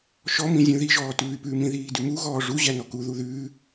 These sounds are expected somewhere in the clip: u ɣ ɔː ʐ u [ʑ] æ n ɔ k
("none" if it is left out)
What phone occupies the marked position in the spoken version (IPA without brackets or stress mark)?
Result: ʑ